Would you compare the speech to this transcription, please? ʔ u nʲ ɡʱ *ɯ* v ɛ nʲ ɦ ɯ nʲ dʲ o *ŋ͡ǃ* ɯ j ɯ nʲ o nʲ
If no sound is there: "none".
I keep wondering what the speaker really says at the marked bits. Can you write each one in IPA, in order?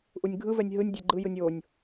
ɯ, ɡ͡ǃ

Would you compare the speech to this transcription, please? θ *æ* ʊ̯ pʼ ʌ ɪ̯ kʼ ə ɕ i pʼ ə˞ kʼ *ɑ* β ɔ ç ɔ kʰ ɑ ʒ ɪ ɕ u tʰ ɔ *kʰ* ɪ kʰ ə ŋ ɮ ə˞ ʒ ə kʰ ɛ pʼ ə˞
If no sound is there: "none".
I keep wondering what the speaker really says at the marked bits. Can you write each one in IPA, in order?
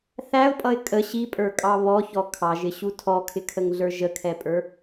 æ, ɑ, kʰ

